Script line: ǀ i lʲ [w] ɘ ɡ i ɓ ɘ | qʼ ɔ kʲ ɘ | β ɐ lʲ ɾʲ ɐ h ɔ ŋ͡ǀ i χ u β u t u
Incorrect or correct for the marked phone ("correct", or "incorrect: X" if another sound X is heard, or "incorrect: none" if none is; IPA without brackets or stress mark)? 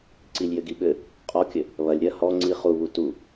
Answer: incorrect: j